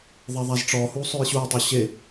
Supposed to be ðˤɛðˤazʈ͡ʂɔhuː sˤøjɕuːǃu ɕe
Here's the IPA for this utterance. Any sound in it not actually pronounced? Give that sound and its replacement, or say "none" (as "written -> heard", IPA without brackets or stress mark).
ǃ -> tˤ